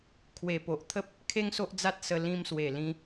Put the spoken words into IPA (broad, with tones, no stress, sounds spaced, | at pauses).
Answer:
kʰ w e˨˩ p o˨ ʔ t̪ʰ ə˦ p̚ | kʰ e˦ ŋ s o˦ ʔ d͡z a˦ t̚ s ə˧ l ĩ˧ m s w e˨˩ l ĩ˧